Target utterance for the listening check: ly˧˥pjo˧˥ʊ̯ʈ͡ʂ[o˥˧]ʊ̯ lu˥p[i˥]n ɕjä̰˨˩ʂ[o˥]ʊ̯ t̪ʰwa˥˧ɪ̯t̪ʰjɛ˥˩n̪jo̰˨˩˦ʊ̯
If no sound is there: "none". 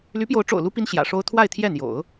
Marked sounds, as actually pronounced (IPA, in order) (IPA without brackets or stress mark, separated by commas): o̰˨˩, i˥, o˥